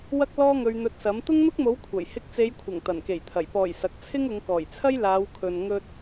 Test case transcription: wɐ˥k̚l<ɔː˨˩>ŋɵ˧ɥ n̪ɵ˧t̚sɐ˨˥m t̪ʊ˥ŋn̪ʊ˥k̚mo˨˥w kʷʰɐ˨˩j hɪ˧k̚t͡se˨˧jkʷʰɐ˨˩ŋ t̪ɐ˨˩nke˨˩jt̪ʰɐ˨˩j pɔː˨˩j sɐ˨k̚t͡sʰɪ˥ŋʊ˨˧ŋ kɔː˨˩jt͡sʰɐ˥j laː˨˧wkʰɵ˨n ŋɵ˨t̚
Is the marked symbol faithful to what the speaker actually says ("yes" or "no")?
no